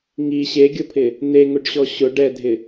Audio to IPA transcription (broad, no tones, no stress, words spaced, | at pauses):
ŋi ɕeɡʲopʰɪ | n̪eŋʊɖɕɔ ɕʊ ɖɛdʱɪ